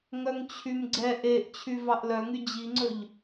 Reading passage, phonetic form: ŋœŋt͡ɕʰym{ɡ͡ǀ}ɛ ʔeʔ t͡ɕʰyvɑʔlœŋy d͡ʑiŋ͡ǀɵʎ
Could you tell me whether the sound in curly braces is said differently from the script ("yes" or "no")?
no